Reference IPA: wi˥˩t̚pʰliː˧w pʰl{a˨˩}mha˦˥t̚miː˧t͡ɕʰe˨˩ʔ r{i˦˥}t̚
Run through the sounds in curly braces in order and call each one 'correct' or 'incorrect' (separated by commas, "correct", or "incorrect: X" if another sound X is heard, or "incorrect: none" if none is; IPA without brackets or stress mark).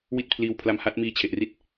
incorrect: a˧, correct